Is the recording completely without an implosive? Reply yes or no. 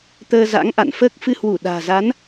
no